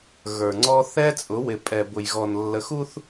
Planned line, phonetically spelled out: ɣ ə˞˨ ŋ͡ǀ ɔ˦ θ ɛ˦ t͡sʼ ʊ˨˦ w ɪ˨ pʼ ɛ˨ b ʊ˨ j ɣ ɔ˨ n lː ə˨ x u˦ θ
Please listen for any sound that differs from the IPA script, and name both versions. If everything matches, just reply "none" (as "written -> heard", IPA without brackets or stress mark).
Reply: none